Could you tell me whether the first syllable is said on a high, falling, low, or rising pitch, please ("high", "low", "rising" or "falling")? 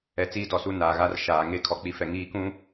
low